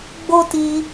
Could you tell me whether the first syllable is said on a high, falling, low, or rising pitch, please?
high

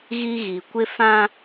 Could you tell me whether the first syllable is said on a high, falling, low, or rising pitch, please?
high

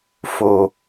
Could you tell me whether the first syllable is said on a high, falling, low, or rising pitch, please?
low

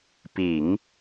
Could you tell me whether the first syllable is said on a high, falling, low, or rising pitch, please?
low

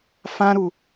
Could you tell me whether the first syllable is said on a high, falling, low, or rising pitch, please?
high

